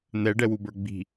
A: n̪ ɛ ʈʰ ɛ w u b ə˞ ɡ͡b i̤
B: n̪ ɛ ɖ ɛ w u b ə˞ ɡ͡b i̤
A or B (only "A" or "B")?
B